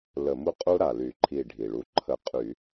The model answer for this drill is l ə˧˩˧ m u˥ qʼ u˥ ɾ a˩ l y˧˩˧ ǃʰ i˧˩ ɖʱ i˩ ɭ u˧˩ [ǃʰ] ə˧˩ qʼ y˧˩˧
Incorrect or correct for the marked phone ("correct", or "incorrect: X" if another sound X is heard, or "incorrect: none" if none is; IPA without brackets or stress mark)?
correct